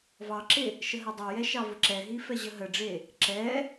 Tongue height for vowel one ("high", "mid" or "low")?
low